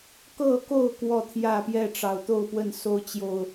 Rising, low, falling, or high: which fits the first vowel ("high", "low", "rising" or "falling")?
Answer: falling